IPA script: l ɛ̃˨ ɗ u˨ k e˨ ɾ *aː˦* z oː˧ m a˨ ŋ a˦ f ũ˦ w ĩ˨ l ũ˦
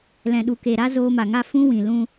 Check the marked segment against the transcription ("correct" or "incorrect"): incorrect